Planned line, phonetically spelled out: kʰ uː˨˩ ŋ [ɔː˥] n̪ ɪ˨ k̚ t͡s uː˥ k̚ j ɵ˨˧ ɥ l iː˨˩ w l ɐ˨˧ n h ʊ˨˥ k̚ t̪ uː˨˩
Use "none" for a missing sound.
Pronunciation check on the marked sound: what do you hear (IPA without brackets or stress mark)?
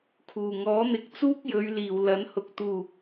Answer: ɔː˨˥